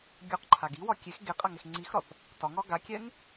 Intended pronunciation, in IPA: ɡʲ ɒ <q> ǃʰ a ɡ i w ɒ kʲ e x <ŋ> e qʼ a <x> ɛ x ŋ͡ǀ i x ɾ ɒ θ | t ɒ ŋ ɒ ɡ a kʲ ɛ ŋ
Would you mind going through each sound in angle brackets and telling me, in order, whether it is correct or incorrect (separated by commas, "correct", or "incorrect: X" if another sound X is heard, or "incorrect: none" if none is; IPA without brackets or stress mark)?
correct, incorrect: ɡ, incorrect: ŋ